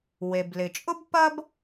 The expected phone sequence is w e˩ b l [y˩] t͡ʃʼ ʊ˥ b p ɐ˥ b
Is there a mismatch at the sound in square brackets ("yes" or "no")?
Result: yes